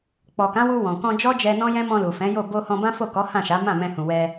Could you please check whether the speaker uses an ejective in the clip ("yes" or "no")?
no